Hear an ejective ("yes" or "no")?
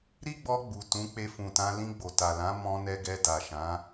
no